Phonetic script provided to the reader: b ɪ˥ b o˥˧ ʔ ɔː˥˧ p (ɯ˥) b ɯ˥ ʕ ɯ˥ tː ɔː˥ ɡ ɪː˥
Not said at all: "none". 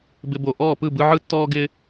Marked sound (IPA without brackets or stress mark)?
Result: ɯ˥˧